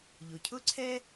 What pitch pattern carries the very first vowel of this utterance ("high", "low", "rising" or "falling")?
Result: low